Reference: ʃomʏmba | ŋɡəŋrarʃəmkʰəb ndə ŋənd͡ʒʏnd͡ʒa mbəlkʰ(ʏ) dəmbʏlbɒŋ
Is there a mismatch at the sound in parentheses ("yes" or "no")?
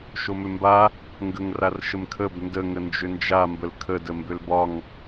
yes